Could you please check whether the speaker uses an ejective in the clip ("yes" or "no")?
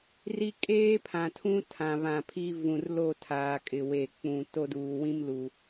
yes